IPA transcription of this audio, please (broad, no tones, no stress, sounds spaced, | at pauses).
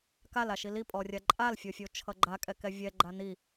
k a l a ʃ i l i pʼ ɔ rʲ a ǃʼ a l fʲ o fʲ o t͡ʃʰ ʌ ɡ͡ǃ a kʼ ɛ k ɛ vʲ ɛ ɡ͡ǃ a n i